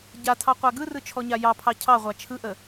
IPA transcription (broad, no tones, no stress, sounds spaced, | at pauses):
ɟ a tʰ ɑ qʷ a ɡ ɯ r ɯ t͡ʃʰ ɔ ɲ a j ɑ pʰ ɑ cʰ ɑ ʁʷ a t͡ʃʰ ɯ ʔ ə